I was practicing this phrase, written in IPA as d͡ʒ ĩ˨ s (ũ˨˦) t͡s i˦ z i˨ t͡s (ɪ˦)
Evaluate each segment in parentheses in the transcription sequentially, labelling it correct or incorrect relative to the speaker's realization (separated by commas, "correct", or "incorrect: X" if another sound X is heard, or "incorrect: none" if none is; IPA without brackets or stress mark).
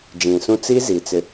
incorrect: ũ˦, incorrect: ɪ˨